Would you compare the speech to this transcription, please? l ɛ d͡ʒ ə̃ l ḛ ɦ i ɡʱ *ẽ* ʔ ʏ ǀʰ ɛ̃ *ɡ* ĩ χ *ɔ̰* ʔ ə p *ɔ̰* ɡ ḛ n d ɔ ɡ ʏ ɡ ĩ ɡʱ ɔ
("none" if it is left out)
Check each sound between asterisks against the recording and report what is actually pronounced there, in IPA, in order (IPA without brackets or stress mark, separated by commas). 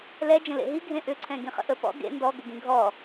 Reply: ẽ, ɡ, ə̰, ɔ̰